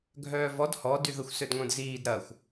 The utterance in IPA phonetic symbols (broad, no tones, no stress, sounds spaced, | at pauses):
ɡʱ œː v ɔ d h ɔ d y ð ə xʷ s ø d ŋʷ œ̃ d z iː d ɾ ɐ xʷ